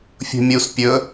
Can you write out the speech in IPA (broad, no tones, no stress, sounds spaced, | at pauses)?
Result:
fʲ ṳ mʲ u s pʲ ɵ